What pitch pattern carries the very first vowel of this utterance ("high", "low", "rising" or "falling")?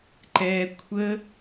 low